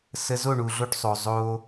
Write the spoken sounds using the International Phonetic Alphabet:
sə˧ zo˦˨ɳu˨ɮo˧ʈsˤo˨ zˤoː˧

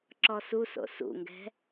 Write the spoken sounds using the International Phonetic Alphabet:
ǁɔsuso̰ sṵŋɡɛ̤

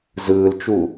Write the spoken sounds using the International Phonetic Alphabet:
zɯːlt͡ʃu

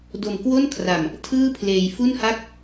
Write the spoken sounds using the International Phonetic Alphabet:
do˧mkwo˥˩nkʰra˧m | tʰɯː˥˩pʰleː˧jfu˥˩nha˥˩k̚

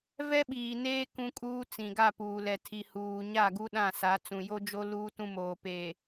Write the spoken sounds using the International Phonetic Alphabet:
vɛ˦ɓiː˨neː˦ kũ˦kʼuː˦t͡sĩ˨ ɡa˦˨puː˨lɛ˨ tʰi˨huː˨ ɲa˦˨ɡu˦ ɗã˦˨sa˨˦ t͡sũ˨jo˦d͡ʒo˦ luː˦tũ˦moː˨ peː˨

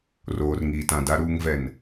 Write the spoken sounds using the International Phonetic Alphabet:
roː˨rŋiː˨tã˨ da˨ɾuː˨ŋvɛ˨n

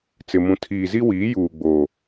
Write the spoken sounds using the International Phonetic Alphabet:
t͡sɪ˨mũ˨ tʰiː˨zi˦wiː˨˦ juː˨ɡ͡boː˨

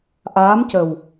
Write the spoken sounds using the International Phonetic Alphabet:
ʔaː˧˥mcə˨˩w

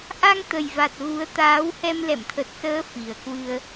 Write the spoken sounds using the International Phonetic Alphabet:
ʔa˧ŋ t̪ə˨˩jva˨˩t̚ ɣu˨˦ə̯t̪aː˨˦w hɛ˧mlɛ̰˧˨mt̪ʰə˨˩t̚səː˨˦ fi˨˩ə̯kwɨ˧ə̯

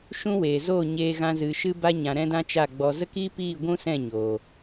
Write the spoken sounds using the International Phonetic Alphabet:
ʃũ˦weː˨ zoː˦˨ɲeː˧ ɣã˧zɨ˨ ʃɨ˦ba˦ ɲã˧ɾɛ̃˦dã˦ t͡ʃa˦˨ɡ͡bɔ˧ zə˦kiː˦piː˦˨ ɡʷũ˦sɛ̃˦˨ ɲoː˨

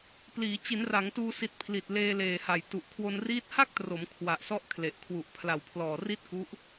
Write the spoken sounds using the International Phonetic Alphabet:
pliː˩˦ t͡ɕi˩˦nra˩˦ŋtuː˧si˨˩t̚ pʰli˨˩t̚leː˧leː˨˩ ha˨˩jtu˨˩ʔ kʰwo˧nriː˦˥t̚ ha˥˩k̚tro˩˦m kʰwa˨˩ʔ sɔ˦˥ʔkʰle˨˩ʔ kʰwu˨˩ʔ pʰla˨˩w pʰlɔː˨˩ri˥˩t̚ku˦˥ʔ

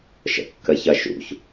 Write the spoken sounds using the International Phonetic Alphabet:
ʃə̰kːəçɐʃṵç

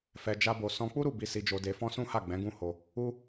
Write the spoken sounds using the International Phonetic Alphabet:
fɛ˧d͡ʒa˦bo˧ sɔ̃˧k͡pu˦ɾu˦˨ bi˧si˧d͡ʒo˧de˧ fɔ̃˦sũ˦ha˦˨ɡ͡bɛ̃˨˦ ɡũ˦ho˧ | u˦

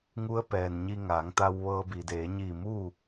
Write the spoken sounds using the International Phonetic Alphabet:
ŋu˧˥ə̯pɛː˩nɲi˧ ŋaː˩˧ŋt̪a˧w ʋɤː˧bi˩deː˩˧ ɲiː˧˩muː˥˨

